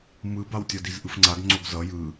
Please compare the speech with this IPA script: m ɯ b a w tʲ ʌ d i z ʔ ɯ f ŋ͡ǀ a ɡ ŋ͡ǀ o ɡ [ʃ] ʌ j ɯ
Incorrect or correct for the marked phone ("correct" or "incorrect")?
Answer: incorrect